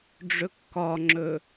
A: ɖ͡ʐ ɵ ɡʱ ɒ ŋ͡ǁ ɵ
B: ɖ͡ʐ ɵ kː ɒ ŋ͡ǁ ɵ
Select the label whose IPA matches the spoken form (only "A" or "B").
B